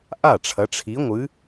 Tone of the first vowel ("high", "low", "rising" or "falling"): falling